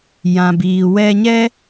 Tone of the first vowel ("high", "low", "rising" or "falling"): low